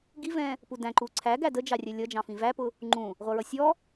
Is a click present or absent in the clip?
present